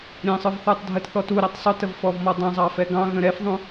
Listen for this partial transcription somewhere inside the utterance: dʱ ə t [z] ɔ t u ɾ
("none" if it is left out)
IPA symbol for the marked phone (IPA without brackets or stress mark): θ